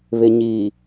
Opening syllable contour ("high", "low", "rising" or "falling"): low